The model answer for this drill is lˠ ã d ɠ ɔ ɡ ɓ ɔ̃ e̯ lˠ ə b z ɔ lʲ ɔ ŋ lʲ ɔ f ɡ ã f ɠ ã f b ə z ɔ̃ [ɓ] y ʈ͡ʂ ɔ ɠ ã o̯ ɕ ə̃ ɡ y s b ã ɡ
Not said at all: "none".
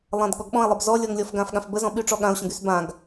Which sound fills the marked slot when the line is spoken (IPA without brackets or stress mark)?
ɓ